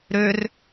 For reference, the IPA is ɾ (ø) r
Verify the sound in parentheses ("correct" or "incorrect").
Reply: correct